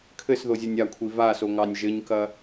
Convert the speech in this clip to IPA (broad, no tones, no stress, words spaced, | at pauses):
kʰɘsðozʲɐnʲ akʷʰi vasoŋɑnʲ ʒɘɲkɐ